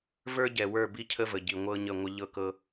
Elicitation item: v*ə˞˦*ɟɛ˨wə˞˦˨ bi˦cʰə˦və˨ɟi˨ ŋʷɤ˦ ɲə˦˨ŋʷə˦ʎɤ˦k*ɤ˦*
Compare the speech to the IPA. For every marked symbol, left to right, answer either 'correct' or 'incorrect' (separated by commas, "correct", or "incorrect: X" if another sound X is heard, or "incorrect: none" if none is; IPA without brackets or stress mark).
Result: correct, correct